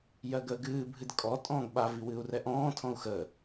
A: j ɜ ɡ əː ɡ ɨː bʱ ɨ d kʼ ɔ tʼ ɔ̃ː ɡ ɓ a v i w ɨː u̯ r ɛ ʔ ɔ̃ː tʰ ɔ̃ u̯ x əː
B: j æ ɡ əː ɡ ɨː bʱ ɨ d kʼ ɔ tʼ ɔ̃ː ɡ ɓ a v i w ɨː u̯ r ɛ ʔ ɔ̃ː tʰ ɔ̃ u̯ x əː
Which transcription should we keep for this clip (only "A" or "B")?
A